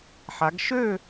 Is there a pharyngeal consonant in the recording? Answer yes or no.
yes